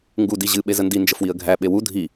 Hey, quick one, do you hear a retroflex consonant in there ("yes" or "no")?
no